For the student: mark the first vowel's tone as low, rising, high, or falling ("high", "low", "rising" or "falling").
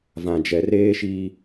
low